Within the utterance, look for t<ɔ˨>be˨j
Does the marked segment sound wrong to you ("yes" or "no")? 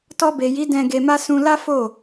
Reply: yes